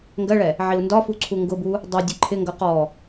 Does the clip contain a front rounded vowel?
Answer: no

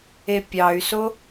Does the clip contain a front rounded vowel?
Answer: yes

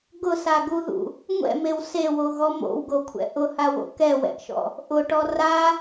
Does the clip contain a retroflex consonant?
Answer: yes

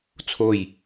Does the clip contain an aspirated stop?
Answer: yes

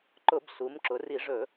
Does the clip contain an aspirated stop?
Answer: no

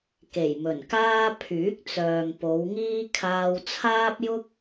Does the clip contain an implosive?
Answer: no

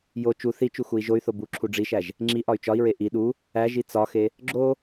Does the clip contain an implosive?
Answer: yes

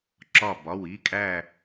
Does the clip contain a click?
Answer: yes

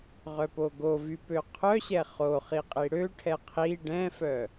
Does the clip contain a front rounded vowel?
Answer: yes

